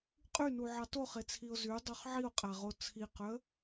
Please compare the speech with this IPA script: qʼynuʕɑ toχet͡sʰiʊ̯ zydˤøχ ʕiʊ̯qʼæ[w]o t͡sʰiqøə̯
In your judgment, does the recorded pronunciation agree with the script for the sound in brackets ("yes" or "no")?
no